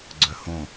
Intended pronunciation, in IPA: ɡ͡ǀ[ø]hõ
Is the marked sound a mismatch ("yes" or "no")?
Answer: yes